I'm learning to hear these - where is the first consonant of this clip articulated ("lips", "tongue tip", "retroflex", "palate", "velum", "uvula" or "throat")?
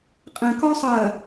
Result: uvula